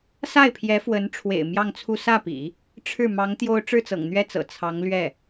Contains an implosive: no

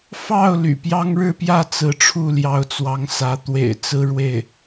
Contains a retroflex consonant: yes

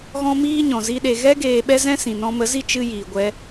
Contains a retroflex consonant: no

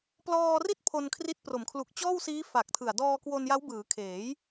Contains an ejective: no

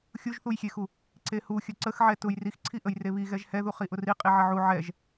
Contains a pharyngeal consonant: yes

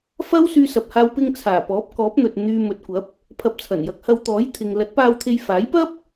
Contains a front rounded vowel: yes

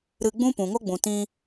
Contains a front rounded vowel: no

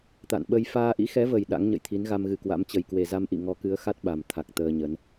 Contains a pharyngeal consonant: no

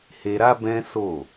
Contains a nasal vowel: yes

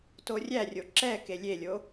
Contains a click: yes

